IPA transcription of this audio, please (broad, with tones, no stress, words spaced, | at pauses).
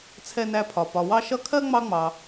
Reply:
t͡sʰɛ˥næ˥pʰɒ˧ pɒ˧ wɑ˥ʃʌ˥ kʰɜ˥ ŋ͡mɑ˥ŋ͡mɑ˧